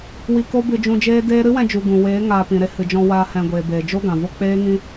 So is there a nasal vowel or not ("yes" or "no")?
yes